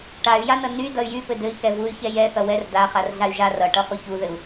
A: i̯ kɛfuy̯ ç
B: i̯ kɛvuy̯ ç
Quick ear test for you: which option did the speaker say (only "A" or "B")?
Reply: B